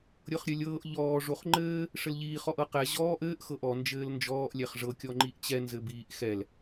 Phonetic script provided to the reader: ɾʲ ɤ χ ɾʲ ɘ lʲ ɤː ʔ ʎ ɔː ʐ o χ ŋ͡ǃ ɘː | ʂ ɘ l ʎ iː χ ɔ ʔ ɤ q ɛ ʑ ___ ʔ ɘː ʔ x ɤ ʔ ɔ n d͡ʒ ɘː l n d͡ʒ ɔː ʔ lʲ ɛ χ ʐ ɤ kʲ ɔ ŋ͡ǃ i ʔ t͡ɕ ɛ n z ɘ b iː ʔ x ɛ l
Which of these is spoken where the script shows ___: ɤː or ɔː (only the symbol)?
ɔː